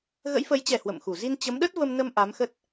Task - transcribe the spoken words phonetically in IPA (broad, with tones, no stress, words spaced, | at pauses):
ɣə̰˧˥jfə˨˦jt͡ɕɛ˨˩ hwə̰˧˨mxu˧˩ zi˧nt͡ɕə˨˦mɗə˦˥t̚ və˧mnə˧m ʔa˨˦mxə˦˥t̚